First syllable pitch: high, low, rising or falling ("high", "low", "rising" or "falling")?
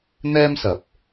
high